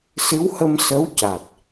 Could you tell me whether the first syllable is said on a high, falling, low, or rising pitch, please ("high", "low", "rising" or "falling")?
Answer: rising